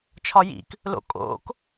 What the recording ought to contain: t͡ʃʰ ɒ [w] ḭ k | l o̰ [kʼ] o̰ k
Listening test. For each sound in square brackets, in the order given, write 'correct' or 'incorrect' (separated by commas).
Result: incorrect, correct